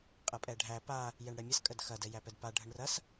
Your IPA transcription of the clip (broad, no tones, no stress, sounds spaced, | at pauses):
qʼ ɐ pʼ ɛ ɖʱ æ p a | j ɛ ɳ ɽ ɛ mʲ ɐ s kʼ ə d x ɐ d ɛ j æ p ɛ d p a ɖʱ ə ɳ r ɐ s